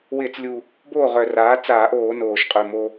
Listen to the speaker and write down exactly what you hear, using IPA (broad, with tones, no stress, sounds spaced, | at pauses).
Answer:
w ɪː˧˩˧ t͡s lʲ u˨˩ | b oː˥˩ ʁ œ˨˩ r aː˩˥ t͡s aː˧˩˧ ʔ oː˧˩˧ n oː˨˩ ʃ qʼ ø˨˩ m o˧